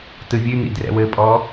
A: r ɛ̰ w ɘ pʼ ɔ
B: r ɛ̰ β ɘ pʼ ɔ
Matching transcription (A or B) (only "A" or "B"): A